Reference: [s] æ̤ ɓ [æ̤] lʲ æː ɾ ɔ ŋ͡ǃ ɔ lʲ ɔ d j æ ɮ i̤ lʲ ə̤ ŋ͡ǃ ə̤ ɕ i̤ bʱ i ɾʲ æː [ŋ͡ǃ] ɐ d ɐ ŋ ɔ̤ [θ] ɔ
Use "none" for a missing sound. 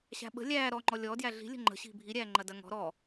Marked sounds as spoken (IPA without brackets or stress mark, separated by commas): ɕ, ə̤, ŋ͡ǃ, ɾ